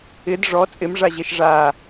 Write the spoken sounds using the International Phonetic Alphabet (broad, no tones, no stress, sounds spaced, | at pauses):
ɪ d ʐ ɔ t͡sʼ ɪ m ʐ a ʑ e ʃ ʐ a